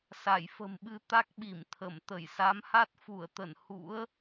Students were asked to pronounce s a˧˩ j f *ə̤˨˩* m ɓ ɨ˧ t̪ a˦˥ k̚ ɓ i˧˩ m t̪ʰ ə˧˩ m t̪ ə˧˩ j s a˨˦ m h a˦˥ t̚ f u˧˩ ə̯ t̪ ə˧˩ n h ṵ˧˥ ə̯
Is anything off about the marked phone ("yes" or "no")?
no